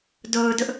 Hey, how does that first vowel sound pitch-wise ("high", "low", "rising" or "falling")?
low